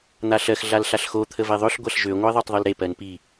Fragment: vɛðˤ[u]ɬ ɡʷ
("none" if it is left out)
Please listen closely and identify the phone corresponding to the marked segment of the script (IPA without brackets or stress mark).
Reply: ø